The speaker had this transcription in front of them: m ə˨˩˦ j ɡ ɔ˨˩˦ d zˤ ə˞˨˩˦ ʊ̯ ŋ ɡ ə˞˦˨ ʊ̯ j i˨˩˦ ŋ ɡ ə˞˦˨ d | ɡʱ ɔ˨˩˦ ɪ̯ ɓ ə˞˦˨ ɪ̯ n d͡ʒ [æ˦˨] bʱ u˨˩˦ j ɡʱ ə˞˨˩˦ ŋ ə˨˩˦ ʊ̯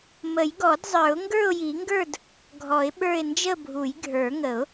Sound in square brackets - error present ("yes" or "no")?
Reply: yes